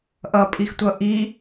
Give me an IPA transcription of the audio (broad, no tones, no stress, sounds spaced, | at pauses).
ʔ ʌ pʼ i x tʷ ʌ ʔ i